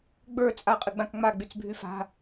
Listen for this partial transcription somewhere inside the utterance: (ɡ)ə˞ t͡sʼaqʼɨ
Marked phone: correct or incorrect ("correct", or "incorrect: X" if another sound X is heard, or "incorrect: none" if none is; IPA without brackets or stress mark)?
incorrect: ɡ͡b